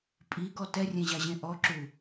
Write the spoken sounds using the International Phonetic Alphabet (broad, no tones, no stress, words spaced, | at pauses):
pʼiɡɔ tɛrʲẽʑaʑẽ ʔɔǁu